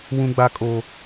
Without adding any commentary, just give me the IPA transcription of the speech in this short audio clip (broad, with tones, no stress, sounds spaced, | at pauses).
w ũ˦ ɡ͡b a˦ kʼ o˦